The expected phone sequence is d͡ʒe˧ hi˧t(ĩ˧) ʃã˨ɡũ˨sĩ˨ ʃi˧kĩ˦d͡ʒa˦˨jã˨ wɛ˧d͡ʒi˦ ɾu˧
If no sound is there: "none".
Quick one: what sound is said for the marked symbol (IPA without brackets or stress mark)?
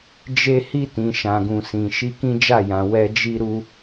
ĩ˨